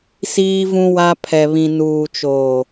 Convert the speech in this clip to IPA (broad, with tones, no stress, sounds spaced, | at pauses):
s iː˦ v ũ˦ w a˦ pʰ ɛ˨ β ĩ˨ n uː˨ t͡ʃ oː˨